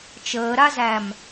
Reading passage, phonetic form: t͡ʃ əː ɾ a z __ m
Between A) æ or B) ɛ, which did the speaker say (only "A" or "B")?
A